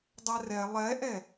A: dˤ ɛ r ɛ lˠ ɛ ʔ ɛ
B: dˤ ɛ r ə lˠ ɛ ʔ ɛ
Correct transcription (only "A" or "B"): A